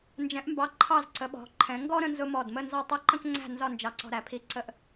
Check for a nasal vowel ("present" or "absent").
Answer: present